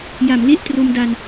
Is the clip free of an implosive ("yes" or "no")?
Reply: yes